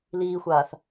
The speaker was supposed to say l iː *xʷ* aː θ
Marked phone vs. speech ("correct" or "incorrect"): correct